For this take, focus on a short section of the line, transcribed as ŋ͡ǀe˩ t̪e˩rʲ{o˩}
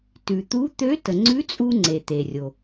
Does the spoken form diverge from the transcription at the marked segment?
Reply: no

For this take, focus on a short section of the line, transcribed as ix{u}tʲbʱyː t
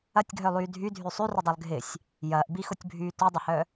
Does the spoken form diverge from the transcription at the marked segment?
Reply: yes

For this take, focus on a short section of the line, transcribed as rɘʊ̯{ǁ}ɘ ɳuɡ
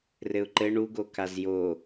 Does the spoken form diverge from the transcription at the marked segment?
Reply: yes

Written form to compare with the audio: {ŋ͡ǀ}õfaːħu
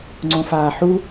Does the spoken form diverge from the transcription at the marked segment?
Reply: no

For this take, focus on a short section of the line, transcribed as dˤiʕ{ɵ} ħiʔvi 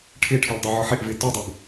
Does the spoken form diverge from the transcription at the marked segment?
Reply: yes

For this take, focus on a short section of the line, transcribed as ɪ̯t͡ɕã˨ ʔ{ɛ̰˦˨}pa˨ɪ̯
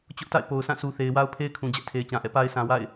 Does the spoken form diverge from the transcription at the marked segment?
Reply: no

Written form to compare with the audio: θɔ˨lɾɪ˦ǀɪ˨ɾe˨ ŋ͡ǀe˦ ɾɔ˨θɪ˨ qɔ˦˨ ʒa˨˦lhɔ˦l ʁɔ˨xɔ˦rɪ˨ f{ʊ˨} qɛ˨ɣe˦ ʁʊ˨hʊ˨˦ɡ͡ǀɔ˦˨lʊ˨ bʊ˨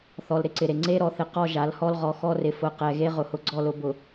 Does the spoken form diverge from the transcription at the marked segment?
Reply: no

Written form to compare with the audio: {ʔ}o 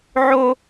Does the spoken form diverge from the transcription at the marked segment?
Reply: yes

